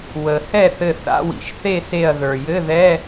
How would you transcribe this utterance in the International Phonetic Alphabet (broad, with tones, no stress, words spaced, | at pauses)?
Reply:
wə˩ hɛ˥˨θɘ˧˩θa̰˧˥˧ wḭ˩ʃθe˥˨se˧˩ɐ̯ ðə˞˩jɘ˧˥˧ðɛ˧˥˧